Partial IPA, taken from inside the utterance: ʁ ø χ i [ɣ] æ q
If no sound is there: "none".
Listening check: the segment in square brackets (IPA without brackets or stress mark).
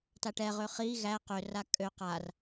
ɣ